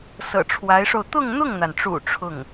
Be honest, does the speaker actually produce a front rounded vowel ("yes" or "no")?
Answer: no